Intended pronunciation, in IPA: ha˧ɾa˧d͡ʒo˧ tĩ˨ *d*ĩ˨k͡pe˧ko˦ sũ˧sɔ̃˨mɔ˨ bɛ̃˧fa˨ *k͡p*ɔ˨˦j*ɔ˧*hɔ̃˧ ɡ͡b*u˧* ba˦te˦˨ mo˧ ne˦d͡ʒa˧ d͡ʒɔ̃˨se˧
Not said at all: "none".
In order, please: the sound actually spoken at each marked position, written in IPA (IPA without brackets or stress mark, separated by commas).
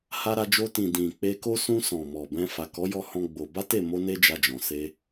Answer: d, k, ɔ˧, o˧